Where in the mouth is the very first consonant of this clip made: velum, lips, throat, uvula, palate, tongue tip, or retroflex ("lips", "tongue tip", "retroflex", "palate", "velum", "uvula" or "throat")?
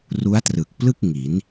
tongue tip